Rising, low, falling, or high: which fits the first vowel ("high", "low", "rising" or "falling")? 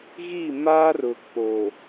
falling